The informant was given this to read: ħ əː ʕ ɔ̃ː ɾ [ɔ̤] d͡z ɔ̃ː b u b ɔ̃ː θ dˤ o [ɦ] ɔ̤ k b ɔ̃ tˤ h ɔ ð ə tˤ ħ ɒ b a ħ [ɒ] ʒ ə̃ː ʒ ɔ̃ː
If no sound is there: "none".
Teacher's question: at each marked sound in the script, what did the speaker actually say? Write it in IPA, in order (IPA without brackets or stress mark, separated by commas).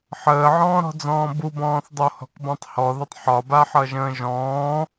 ɔ̤, h, ʌ